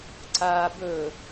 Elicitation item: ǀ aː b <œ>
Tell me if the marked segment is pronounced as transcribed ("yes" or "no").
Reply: no